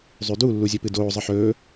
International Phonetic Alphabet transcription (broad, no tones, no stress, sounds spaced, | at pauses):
zˤ ʉ d u lː u zʲ ɵ p ɨ d oː zˤ ɨ ħ ɵː